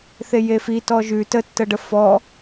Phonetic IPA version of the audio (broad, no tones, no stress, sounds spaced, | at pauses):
θ e j e f i t ɔ ʒ ʉ t ə tː ə ɖ ə f ɔ